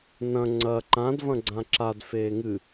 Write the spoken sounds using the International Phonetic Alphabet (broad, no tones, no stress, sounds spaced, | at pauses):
n ɐ̃ ŋ͡ǀ ɐ ǃ ã d v ɐ̃ ɡ͡ǀ ã ǁ a d f eː ŋ ɨ